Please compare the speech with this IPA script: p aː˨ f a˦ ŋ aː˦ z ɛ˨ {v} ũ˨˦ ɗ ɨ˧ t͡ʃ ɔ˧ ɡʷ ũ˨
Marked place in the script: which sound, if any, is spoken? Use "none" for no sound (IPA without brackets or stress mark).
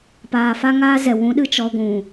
w